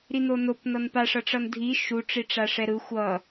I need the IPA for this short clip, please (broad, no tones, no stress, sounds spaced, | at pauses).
ɾ i n o n o p n ʌ n p a ʂ ʌ ʈ͡ʂ ʌ n dʱ i ʃ u ʈ͡ʂ i ʈ͡ʂ a ʂ ɛ ɾ ɯ xʷ ʌ